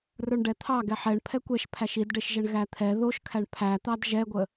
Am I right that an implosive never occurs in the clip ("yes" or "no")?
yes